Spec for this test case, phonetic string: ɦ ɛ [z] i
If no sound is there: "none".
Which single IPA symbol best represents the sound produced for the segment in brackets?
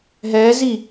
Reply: z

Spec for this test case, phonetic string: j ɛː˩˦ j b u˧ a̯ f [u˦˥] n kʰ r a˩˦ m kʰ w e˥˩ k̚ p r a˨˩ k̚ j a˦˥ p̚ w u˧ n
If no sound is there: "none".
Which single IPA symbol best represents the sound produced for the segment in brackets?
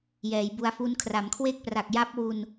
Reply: u˦˥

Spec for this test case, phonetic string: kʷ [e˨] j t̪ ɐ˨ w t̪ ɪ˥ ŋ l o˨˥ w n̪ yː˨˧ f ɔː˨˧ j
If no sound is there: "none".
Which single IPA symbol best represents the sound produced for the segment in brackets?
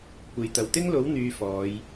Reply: e˨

